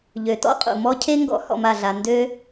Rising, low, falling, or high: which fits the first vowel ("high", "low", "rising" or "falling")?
low